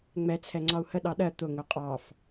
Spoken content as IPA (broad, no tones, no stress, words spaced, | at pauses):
ŋ͡mɛt͡sʰɛŋ͡ǀɒu̯ hə ɗɑɗɜ t̪ʊ ŋʊqʼɑf